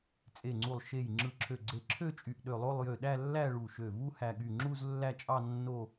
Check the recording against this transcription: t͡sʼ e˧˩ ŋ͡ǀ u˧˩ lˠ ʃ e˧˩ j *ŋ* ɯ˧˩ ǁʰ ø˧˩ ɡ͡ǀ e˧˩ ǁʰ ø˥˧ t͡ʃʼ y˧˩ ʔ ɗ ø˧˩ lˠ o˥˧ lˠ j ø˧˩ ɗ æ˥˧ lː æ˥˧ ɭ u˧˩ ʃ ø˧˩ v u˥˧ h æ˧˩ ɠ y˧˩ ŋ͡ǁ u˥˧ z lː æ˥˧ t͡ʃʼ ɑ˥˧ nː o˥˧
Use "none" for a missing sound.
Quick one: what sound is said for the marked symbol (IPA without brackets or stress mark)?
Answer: ŋ͡ǁ